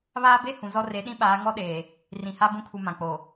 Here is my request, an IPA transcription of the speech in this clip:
β aː˦ b e˦ h ũ˨ z ɔ˦ r e˨˦ ɗ ĩ˦ ɓ aː˨˦ ŋ ɔ˦ ɗ eː˨ | r ĩ˨ h a˦ b ũ˦ kʰ u˨ m ã˨ k͡p o˨

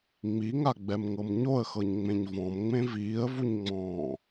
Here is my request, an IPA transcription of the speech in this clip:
ŋ͡m i ŋ a ɡ͡b ɛ m ŋ ɤ m ɲ o ə̯ x ɤ ɲ ŋ͡m ẽ ɲ v ɔ̃ m ŋ͡m ẽ v iː ə̯ v u ɲ ŋ͡m ɔ̃ː

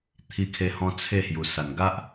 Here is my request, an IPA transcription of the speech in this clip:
t̪ʰ i˧ kʰ e˧ h ɔ̃˧ t͡sʰ e˥˧ h j u˨˩ s a˨˩ n ɡ a˦ ʔ

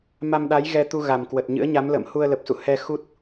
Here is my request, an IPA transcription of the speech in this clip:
m a˧ m ɗ a˨˦ j ɣ ɛ˧ t̪ u˧ ɣ a˨˩ m k w ə˨˩ t̚ ɲ ɨ̰˧˥ ə̯ ɲ a˨˦ m l ə̰ː˧˨ m h u˧ ə̯ l ə˨˩ p̚ s ṵ˧˨ h ɛ˧ x u˦˥ t̚

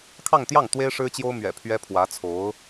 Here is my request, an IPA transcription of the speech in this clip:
kʰ ɑ˥˧ ŋ t̪ j ɑ˥˩ ŋ t̪ w e˥ ɪ̯ ʂ ɻ̩˥ t͡ɕ j o˥ ʊ̯ m ɥ ɛ̰˨˩ pʰ ɥ ɛ˥ pʰ w ä˧˥ t͡sʰ o˧˥ ʊ̯

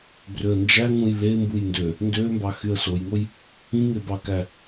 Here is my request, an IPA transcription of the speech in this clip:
b r ø ə̯ n d͡ʒ æ ŋ ũ j l e m b u j n d ø | n d ø m b ɑ x y ə̯ s o j ŋ o j | ĩ ŋ e b ɑ k æ

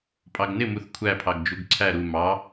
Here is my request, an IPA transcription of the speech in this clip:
pʼ ɑ ɡ n ɪ m u θ kʷʰ æ pʰ ɑ ɡ d͡ʒ u ɡ ǀʰ æ ɾ u m ɑ

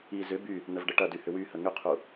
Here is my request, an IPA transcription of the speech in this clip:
i z ʏ b y | n ə v ɖ ə ʈ ɐ d y h ʏ w y h ə ŋ ʏ qʰ u

